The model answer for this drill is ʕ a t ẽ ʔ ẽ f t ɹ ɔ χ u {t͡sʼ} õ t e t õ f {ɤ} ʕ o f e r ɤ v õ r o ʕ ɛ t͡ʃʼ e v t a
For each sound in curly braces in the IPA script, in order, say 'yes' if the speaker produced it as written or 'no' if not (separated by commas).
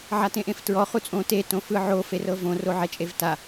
yes, no